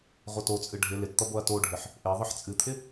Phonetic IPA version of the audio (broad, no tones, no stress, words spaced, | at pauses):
ʁʷʌtot͡sʼɨ ɖʱɪ lɪtt̪ʌ boɐ̯toɖʱɪħ | ʔe ðˤɨħt͡sʼɨt̪ʰɪ